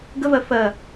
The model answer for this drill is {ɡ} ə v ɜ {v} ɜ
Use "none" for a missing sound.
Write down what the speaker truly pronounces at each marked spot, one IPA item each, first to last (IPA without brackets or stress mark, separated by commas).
ɡ, f